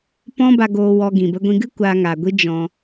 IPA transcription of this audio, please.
p ɔ̃˦ b a˧ ɡ oː˧ w ɔ˧ ɡ ĩ˨ b ə˧ ɡʷ ĩ˧ ɡ ɨ˦ kʷ a˧ ŋ a˨ ɡʷ i˦ d͡ʒ ɔ̃˧

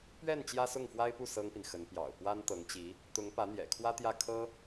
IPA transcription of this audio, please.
p ɥ ɛ˥˩ n t͡ɕ j ä˥ s ʊ˥˩ ŋ f w a˥ ɪ̯ p u˥˩ s ɤ˥ ŋ p i˨ n x ə˧˥ n p j ɑ̰˨˩ ʊ̯ p w a˥ n t̪ ɤ˧˥ ŋ t͡ɕ i˧˥ | t̪ ʊ˧˥ ŋ p ä˧˥ n̪ j ɛ̰˨˩ kʰ w ä˥ t̪ j ä˥˩ kʰ ɤ˥

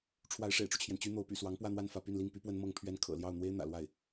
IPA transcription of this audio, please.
ʈ͡ʂʰ w a˧˥ ɪ̯ ʂ ḛ˨˩ ɪ̯ ʈ͡ʂ u˦ t͡ɕʰ j ɛ˩ n t͡ɕ y˥ n̪ o˧˥ ʊ̯ p y̰˨˩ s w ɑ˧˥ ŋ p w ä˥˧ n̪ w a˥˧ n f ä˥˧ p y˥˧ n l i˥˩ ŋ p y˥ p w ə˥ n m ɤ˥˧ ŋ pʰ ɥ ɛ˥˩ n kʰ ɤ̰˨˩ l j ɑ˥˩ ʊ̯ n̪ w e˥ ɪ̯ n̪ ä̰˨˩ l w a˥˩ ɪ̯

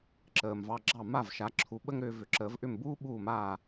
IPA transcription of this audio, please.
ǁ əː˩ m v ɑ˧ ɡ͡ǁ ɑ˥˩ m a˥˩ v ʃ a˩˥ ǁʰ u˩˥ ɓ ə˥ ŋ ɾ ʏː˧ v ʏ˩˥ ǁ əː˩˥ v ʔ ʏ˥˩ m b uː˥ ɓ uː˥˩ m aː˥˩

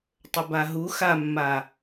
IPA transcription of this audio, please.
tˤ ɵ b a ɦ u x a mː a

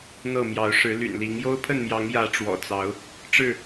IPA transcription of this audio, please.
n̪ ɤ˥˨ m j ɑ˨˦ ʊ̯ ʂ ɻ̩˨˦ l y̰˨˩ n l i˨˦ ŋ j o˦ ʊ̯ pʰ ə˥˨ n m j ɑ˨˦ ŋ j ä˨˦ ʈ͡ʂ w ɔ̰˨˩ t͡s ɑ˨˦ ʊ̯ | ʈ͡ʂ ɻ̩˥˨

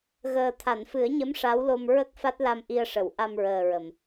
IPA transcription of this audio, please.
ɣ əː˨˩ t̪ʰ a˨˩˨ n f ɨ˨˩˦ ə̯ ɲ ə˧˥ m ʂ a˧˥ w l o˧ m ɹ ə˦˥ k̚ f a˦˥ t̚ l a˧ m ʔ i˧ ə̯ ʂ ə˨˩˨ w ʔ a˧ m ɹ əː˨˩ ɹ ə˨˩˨ m

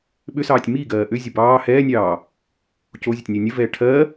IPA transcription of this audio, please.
ɓ ʏ s ɑː tʲ m i ɡ ɜː ʔ ʏ zʲ ə b ɑː h ɛː nʲ ɑː | c o zʲ ə tʲ nʲ o nʲ ə v ɛː ʈʰ ɜ

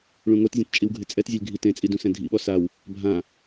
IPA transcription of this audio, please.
ɭ ũ ŋ o t zʲ ɛ̃ t t͡ʃʼ i w ɡʱ ɪ t͡sʼ ɛ t zʲ ɛ lʲ ɡʱ i t ẽ t͡sʼ i d ũ s ɛ̃ dʱ ḭ ɓ ɔ s a w | bʱ ã

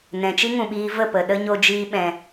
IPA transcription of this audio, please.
n ɛ̃˨ t͡ʃ i˦ ŋ ũ˨ ɓ iː˧ v ə˦˨ p ə˨ ɗ ə˦ ɲ o˧ d͡ʒ iː˧ ɓ ɛ̃˨

